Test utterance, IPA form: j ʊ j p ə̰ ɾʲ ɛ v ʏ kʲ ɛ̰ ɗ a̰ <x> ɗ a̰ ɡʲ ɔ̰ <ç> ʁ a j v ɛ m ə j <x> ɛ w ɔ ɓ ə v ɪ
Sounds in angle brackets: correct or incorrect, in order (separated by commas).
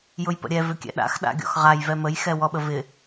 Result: correct, incorrect, correct